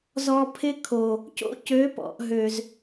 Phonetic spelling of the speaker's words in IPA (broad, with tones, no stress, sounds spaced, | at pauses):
z ɔ˨ pʰ ɪ˦ kʰ o˨ | c o̰˦ c ø˨˦ p ɔ̰˨ ʔ ɦ ø˨ z